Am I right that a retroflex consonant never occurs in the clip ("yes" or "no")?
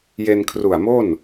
yes